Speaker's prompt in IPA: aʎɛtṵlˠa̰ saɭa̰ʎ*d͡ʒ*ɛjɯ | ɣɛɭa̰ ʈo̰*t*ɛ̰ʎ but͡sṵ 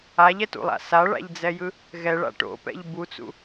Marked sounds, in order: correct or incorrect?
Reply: incorrect, incorrect

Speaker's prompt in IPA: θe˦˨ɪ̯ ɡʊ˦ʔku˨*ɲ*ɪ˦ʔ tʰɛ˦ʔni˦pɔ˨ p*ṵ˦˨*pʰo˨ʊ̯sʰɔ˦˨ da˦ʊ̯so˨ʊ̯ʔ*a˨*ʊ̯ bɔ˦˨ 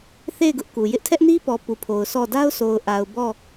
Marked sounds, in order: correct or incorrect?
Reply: incorrect, incorrect, correct

